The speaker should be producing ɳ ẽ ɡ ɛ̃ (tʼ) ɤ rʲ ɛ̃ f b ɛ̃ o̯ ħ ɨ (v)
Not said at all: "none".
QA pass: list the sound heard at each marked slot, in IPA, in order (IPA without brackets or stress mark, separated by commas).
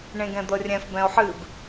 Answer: d̪, b